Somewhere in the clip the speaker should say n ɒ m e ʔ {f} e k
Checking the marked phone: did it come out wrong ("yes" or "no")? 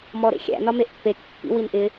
yes